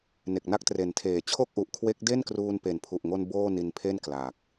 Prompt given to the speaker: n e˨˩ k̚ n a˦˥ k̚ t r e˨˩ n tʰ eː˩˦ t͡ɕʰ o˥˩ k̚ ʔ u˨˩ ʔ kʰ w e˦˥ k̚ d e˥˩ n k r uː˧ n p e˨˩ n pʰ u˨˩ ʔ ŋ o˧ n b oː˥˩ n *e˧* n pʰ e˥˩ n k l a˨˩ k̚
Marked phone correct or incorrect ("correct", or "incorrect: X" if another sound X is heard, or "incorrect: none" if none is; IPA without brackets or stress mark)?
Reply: incorrect: i˧